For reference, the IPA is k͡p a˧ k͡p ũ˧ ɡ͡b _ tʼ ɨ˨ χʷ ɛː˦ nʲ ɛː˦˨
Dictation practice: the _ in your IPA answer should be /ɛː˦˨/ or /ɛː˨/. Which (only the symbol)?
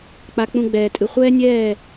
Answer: ɛː˨